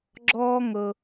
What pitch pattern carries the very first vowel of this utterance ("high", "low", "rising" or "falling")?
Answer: high